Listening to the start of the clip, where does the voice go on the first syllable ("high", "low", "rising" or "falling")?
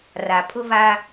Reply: low